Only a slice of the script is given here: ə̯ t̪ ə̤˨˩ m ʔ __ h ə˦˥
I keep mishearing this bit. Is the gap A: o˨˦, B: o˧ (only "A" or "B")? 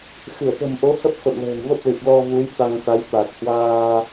A